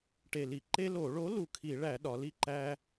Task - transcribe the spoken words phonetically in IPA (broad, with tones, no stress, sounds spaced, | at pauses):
ʈ e˨˩ l i˧˩˧ ǃ e˦ l o˧˩˧ ɭ o˨˥ l u˨˩ kʰ i˧˩˧ ɭ æ˧˩˧ ɗ ɒ˩˧ l i˥˨ ǃ æ˦